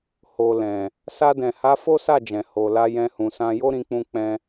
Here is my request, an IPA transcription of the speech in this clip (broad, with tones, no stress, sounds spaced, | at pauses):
h o˨ l ɛ̃˨ | s a˧ d ɛ̃˨ h a˨˦ f o˦ s a˦˨ d͡ʒ ɛ̃˨ h o˨ l a˧ j ɛ̃˧ h ũ˨ s ã˧ j o˦ ɾ ĩ˧ k͡p ũ˧ k͡p ɛ̃˧